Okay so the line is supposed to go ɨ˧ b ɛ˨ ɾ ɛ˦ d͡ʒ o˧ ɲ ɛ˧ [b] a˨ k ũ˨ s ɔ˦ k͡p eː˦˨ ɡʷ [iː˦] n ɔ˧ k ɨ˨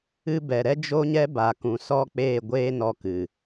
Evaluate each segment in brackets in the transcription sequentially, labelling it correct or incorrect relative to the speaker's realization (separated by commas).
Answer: correct, incorrect